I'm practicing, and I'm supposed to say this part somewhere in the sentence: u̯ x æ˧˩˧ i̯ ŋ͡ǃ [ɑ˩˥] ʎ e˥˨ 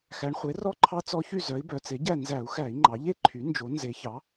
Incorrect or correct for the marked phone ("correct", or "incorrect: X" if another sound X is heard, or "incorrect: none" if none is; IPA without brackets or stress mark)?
incorrect: ɑ˩˧